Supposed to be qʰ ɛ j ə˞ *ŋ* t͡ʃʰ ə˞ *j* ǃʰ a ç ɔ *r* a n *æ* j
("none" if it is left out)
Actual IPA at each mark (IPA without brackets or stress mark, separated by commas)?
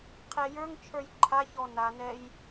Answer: ŋ, j, n, ɛ